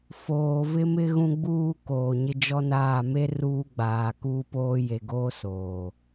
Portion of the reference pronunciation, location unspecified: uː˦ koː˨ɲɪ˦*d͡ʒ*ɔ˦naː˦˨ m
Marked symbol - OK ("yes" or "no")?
yes